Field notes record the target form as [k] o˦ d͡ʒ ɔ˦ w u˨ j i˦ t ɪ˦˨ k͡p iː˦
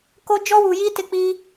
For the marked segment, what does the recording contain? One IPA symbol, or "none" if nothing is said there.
k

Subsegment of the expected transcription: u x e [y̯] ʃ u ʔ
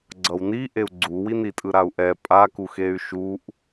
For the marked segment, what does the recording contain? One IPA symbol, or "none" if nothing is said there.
y̯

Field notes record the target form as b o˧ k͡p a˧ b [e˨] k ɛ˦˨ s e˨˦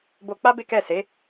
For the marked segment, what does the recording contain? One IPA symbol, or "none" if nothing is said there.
e˦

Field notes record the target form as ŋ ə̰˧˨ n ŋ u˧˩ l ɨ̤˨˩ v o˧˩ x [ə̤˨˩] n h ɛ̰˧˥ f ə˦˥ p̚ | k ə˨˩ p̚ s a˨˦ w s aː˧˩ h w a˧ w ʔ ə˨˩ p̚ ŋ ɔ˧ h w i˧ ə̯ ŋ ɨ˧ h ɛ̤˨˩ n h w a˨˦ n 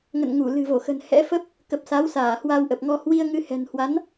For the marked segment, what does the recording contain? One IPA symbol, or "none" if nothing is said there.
ə̤˨˩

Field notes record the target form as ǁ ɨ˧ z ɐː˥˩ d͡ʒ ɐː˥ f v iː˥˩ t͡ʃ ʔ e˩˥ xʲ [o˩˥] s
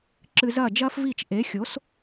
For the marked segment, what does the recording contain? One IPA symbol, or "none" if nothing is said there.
o˩˥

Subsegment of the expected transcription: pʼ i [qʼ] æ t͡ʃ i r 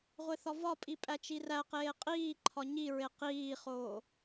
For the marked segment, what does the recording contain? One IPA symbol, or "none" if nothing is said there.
pʼ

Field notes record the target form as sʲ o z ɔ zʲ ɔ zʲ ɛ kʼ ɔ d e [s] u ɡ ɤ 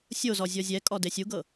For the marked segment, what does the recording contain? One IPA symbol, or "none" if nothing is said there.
sʲ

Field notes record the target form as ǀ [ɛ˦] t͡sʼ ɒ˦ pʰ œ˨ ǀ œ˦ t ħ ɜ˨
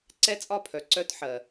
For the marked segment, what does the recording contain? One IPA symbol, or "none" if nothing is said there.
ɛ˦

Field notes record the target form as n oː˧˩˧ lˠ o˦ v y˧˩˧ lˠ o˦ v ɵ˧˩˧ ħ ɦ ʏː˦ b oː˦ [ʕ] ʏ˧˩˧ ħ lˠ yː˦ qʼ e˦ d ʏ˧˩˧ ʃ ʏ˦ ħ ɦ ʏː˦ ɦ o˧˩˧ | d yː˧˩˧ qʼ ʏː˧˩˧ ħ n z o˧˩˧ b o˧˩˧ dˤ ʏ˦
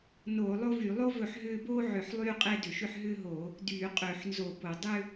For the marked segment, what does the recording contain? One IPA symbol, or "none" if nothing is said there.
ʕ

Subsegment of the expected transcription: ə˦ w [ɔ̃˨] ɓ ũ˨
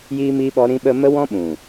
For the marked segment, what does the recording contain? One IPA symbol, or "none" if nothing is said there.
ɔ̃˦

